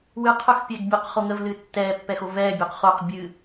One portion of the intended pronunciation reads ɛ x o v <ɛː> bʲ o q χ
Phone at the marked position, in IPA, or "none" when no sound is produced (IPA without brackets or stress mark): ɛː